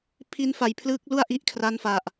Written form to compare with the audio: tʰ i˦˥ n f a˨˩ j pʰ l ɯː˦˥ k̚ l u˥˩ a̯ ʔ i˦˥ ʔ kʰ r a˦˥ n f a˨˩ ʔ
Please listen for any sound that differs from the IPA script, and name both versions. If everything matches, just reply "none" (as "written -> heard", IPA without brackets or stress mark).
tʰ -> pʰ